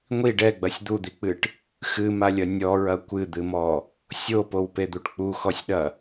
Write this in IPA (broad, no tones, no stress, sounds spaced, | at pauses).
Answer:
ŋʷ i ɖ ɛ ɡ͡b ɐ sʲ d̪ u d̪ i k͡p ɨ ʈ | x ɨ m a lʲ ɐ nʲ ɔ ɹ ɐ kʷ ɨ d̪ ɨ m ɔ | sʲ o p o w p e d̪ u ʈ k͡p u x ɔ sʲ ɗ ɐ